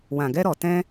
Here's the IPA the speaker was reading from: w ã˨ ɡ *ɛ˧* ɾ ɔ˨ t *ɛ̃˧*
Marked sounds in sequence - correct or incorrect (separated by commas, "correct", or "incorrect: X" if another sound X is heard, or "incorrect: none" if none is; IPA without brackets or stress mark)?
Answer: correct, correct